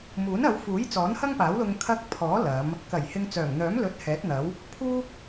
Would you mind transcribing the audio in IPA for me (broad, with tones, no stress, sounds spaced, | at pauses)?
m uː˨˥ n ɐ˨˧ w f uː˨˥ j t͡s ɔː˨˥ n h ɐ˥ ŋ p aː˨˥ w l ʊ˧ ŋ kʰ ɐ˧ k̚ pʰ ɔː˨˥ l ɐ˨˧ m | k ɐ˨˩ j h ɪ˨ ŋ t͡s œː˨˩ ŋ n̪ œː˨˥ m l ɵ˧ t̚ h ɛː˨˥ t̚ n̪ ɐ˨˥ w | pʰ uː˥